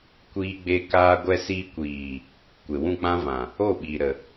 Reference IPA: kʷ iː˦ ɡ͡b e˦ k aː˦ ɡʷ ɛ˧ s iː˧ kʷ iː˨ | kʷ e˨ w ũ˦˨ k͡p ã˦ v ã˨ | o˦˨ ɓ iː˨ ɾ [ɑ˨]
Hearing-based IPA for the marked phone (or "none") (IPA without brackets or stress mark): ə˨